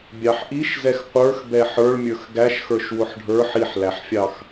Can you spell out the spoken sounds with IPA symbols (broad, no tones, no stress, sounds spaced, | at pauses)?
bʲ ɑ ħ ʔ i ʃ z ɛ x qʷ ə˞ x b ɛ ħ ə˞ ɭ mʲ ə˞ x ɡ æ ʃ x ə˞ ʃ w ʊ ħ ɖʱ ə˞ ħ i ħ l æ ħ fʲ ɑ x